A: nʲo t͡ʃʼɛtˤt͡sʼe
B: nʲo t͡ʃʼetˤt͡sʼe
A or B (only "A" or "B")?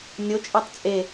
A